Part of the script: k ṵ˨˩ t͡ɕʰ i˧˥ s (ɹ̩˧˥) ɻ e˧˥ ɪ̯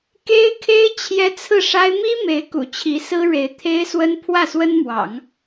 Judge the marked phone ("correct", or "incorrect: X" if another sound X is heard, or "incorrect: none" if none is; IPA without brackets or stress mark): incorrect: ɹ̩˥